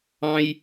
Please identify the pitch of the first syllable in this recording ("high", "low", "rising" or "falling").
high